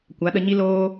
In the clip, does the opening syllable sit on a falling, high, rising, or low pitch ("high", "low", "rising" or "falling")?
rising